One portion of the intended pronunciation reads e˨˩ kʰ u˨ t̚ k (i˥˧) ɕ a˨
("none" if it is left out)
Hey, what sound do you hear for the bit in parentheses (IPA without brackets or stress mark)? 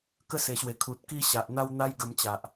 i˥˧